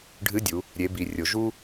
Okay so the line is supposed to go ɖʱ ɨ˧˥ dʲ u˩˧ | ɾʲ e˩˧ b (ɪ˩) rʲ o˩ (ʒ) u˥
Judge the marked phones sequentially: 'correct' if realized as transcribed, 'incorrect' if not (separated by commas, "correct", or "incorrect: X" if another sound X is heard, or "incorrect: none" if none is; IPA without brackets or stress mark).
incorrect: i˩, correct